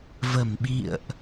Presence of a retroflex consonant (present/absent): absent